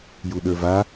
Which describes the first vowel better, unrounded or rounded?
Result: rounded